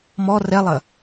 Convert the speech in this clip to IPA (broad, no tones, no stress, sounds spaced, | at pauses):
m ɔ r ɛ lˠ ɐ